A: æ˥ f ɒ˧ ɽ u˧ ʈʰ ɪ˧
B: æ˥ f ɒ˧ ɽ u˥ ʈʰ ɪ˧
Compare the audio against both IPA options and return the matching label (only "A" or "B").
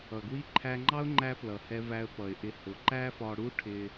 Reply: B